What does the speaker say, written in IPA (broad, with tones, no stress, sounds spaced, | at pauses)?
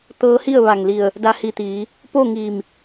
t̪ ɤː˧˥ h i˥˨ ə̯ ʋ a˧˩ ŋ l i˧˩ ə̯ | d a˧ h i˧˩ t̪ iː˩˧ | p o˥˨ ŋ iː˧˩ m